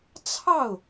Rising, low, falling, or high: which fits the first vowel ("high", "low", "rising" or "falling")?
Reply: falling